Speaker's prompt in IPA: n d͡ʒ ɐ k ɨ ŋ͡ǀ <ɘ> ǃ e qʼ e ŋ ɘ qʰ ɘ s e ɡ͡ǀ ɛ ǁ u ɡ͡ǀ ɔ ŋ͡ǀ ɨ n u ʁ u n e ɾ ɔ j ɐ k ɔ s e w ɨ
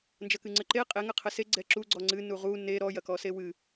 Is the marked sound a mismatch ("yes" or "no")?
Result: no